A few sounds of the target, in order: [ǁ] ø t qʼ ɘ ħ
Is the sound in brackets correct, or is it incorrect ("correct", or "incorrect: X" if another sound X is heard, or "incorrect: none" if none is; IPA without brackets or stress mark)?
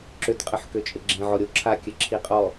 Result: correct